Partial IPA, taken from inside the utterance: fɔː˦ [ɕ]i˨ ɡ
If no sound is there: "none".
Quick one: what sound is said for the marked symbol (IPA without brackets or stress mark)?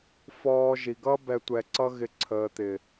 ʒ